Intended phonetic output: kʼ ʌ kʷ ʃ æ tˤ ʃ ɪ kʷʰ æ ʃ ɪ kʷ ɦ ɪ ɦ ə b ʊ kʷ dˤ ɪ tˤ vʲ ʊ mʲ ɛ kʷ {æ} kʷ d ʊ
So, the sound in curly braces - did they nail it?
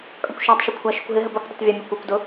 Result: no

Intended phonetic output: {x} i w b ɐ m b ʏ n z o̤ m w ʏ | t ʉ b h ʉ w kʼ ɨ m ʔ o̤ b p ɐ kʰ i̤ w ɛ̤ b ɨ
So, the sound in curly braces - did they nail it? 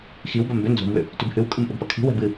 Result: yes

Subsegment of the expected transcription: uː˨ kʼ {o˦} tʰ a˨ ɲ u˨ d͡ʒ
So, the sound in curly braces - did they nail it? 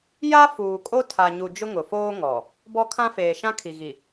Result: yes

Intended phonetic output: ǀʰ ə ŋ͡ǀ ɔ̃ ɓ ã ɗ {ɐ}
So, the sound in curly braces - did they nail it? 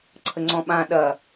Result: yes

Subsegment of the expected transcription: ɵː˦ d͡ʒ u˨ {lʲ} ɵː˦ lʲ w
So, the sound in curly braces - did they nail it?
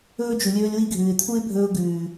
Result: yes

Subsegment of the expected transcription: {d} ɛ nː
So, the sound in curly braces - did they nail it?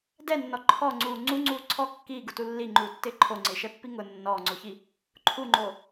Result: yes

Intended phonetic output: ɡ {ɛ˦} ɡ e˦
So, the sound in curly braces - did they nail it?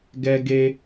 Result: yes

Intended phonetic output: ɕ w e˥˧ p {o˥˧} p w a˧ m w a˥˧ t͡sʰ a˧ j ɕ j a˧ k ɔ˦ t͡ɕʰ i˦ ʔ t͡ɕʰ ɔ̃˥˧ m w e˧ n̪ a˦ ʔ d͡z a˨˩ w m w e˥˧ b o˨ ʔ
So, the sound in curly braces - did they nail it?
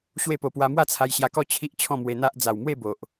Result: no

